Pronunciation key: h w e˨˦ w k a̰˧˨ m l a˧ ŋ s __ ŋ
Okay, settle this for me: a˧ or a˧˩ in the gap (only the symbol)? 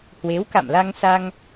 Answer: a˧